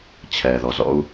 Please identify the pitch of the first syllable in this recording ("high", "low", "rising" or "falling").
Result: low